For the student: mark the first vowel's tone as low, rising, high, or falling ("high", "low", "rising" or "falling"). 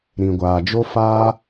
low